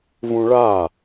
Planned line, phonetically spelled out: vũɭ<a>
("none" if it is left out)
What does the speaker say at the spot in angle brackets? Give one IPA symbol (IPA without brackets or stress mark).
a